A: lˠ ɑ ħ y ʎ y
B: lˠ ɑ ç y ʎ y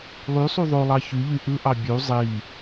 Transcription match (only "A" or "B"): B